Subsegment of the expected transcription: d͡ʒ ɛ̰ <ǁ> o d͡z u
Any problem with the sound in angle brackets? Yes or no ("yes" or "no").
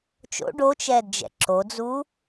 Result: no